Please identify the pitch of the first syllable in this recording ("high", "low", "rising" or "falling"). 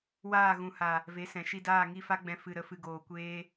falling